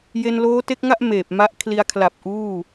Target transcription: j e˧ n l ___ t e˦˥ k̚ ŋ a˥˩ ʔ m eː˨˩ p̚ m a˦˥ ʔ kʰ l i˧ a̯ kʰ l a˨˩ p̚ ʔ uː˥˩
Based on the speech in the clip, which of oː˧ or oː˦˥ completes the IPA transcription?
oː˦˥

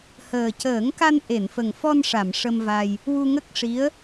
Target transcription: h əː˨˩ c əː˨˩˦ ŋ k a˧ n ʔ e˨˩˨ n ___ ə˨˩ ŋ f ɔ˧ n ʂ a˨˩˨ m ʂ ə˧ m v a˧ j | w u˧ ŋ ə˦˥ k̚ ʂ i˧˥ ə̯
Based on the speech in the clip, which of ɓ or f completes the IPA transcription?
f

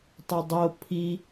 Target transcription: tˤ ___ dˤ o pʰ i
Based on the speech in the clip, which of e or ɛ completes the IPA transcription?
e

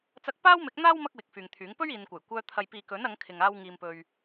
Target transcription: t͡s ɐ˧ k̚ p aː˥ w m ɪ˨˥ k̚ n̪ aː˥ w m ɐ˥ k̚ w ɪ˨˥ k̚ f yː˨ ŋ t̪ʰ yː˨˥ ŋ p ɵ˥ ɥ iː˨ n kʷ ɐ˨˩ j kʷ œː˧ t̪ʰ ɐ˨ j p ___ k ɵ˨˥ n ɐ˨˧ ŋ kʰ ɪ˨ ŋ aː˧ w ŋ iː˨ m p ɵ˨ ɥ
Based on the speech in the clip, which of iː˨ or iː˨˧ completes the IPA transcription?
iː˨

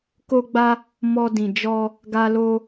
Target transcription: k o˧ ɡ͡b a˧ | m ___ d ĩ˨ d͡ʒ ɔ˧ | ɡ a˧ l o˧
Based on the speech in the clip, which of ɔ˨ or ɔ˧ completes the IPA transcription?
ɔ˧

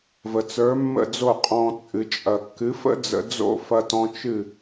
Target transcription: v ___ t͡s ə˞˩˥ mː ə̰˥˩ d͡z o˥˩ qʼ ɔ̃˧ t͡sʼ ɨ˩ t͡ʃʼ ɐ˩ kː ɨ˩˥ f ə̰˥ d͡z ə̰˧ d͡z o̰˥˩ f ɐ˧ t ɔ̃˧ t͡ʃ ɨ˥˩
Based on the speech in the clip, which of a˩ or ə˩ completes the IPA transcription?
ə˩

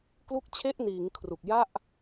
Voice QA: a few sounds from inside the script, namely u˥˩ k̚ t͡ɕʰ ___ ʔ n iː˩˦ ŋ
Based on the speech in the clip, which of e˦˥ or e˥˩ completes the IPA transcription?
e˥˩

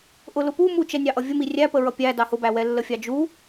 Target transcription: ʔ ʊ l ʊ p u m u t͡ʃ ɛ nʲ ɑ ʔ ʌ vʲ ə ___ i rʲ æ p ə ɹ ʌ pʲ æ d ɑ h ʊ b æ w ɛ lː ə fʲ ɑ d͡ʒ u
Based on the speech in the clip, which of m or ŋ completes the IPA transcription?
m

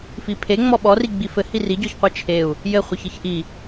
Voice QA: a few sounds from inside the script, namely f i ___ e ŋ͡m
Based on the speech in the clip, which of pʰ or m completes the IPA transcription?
pʰ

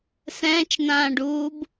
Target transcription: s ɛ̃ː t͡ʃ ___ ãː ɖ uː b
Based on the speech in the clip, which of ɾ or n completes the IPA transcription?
n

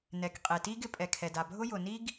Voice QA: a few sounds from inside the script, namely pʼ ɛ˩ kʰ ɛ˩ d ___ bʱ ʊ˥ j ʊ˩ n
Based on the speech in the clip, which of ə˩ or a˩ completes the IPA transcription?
a˩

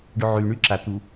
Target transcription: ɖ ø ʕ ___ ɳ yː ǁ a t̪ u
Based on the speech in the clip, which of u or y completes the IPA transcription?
y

